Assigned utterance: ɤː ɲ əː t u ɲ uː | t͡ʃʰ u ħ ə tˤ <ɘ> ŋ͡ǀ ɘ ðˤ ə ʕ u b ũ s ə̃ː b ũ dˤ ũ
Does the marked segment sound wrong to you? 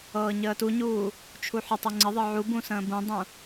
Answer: no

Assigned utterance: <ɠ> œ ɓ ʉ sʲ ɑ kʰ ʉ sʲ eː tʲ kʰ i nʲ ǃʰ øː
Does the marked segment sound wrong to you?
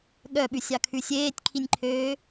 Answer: no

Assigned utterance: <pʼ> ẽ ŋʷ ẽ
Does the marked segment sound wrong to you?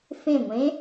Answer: yes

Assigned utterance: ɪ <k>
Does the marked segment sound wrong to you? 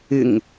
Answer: yes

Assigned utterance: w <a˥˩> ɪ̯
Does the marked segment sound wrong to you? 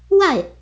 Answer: no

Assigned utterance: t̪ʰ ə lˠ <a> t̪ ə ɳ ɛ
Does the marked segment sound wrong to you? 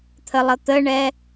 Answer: yes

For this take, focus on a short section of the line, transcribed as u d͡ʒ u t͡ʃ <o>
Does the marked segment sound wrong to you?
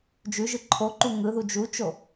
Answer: no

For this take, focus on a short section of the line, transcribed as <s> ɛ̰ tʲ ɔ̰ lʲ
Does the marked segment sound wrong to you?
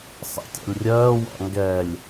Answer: yes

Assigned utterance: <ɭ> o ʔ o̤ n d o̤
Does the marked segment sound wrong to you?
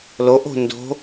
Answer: yes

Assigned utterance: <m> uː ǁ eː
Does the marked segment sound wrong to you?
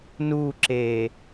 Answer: yes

